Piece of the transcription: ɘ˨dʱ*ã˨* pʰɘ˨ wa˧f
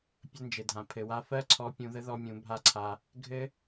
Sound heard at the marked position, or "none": ã˨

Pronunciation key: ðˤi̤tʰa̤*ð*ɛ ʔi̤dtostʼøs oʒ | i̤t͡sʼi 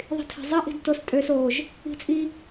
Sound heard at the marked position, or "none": zˤ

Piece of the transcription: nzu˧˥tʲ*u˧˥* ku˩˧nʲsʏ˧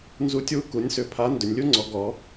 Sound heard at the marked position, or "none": u˧˥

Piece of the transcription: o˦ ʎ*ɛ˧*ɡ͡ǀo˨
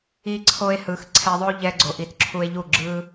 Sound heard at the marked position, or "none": ɛ˧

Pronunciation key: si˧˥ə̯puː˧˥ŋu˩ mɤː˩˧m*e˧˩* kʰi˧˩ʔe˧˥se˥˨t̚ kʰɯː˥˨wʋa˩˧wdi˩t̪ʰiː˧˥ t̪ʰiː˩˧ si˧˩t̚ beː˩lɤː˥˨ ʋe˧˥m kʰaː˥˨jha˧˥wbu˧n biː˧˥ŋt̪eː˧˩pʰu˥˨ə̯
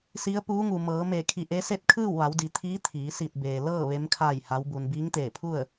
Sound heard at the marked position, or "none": e˧˩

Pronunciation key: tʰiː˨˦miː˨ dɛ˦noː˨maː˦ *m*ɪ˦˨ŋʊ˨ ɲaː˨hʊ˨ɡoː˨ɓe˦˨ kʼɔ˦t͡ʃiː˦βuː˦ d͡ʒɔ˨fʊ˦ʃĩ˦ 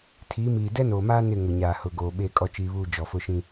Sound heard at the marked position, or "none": n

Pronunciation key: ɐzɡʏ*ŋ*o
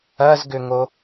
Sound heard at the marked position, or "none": ŋ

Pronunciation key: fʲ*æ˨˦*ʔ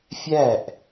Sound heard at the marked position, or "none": æ˦˨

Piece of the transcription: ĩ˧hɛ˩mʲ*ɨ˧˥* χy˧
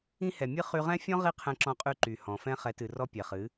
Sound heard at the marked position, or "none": ɨ˧˥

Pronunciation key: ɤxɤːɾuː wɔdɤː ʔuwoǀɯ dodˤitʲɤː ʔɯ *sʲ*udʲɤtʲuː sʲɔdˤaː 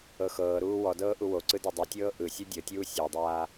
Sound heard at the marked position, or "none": sʲ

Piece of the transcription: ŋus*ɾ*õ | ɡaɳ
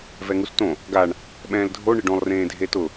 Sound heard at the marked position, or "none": t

